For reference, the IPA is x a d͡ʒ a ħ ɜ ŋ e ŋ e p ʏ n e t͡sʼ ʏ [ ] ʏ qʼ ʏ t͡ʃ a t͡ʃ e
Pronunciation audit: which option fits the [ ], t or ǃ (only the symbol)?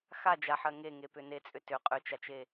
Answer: t